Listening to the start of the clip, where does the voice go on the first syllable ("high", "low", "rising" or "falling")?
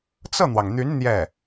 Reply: falling